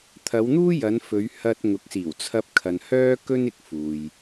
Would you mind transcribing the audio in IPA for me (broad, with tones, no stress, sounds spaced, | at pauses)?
t̪ʰ ɐ˨˧ w n̪ uː˥ j ɐ˨˧ n f ɵ˨˧ ɥ h ɐ˧ t̚ ŋ ʊ˨˥ k̚ s iː˨˩ w t͡sʰ ɐ˧ p̚ kʰ ɐ˨ n h œː˥ k ɵ˥ n ɪ˧ k̚ f uː˨ j